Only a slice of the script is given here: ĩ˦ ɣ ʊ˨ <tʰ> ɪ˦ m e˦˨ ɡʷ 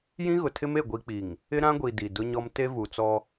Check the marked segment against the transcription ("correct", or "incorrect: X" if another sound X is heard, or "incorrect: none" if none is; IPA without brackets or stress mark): correct